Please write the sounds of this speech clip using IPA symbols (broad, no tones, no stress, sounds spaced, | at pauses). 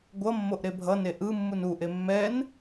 ɡʷ ʌ mː o ʔ ɾ e bʱ ʌ n e ʔ ɯ mː u n u ʔ e mː ɛ n